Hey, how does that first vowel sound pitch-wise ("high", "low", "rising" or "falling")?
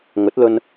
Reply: rising